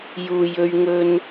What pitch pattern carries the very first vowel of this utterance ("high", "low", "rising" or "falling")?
low